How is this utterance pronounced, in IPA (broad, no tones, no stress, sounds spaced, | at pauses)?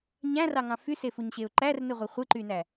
ɲ æ̃ r ɑ ŋ ɑ̃ f y s e f u ɲ ɕ e ʊ̯ ǃ æ r n ɯ ʁʷ ɯ χʷ ɯ ǃ y n æ